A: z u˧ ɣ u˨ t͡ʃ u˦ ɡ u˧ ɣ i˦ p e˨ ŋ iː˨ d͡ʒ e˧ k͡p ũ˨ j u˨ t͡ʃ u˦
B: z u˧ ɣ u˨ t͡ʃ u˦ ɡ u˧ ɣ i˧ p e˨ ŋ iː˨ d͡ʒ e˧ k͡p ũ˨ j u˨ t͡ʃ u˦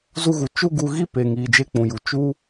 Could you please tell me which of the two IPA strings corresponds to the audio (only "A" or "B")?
A